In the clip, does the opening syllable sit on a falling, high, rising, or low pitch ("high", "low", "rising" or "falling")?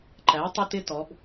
rising